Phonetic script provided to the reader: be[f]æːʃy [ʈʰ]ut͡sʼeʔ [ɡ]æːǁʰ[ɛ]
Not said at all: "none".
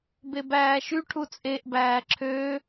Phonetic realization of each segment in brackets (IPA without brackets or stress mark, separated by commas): b, ʈʰ, b, ø